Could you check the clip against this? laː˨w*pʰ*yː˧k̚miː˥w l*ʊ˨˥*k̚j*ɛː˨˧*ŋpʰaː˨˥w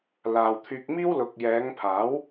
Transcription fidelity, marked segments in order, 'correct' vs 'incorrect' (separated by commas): incorrect, incorrect, correct